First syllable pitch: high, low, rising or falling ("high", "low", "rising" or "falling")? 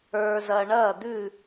low